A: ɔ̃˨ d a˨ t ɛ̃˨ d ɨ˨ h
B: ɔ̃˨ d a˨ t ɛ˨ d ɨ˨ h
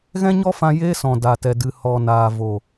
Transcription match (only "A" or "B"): B